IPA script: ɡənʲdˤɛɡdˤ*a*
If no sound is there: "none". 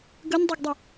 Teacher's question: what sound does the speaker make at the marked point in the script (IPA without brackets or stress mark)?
ə